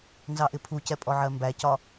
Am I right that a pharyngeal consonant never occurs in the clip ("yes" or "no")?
no